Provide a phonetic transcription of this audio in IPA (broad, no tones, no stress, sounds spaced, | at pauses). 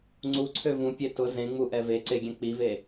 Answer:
ŋ͡ǀ u ǀʰ ø v ũ pʲ e t ʊ z ẽ ŋ͡m u ʔ ɛ v e ǀ e ɡʲ ɛ̃ k͡p i v e